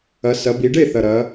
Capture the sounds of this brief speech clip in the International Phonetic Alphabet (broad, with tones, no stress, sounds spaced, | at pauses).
ɐ˩˧ s ɐ˩˧ b i˩˧ ɖ e˥˩ θ ɐ˨˩ ɾ ɐ˩˧